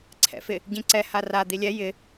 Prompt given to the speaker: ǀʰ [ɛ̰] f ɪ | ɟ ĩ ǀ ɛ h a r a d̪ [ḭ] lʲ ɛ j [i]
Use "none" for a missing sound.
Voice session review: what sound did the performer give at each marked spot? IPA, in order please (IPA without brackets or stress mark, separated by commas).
ɛ̰, i, ɪ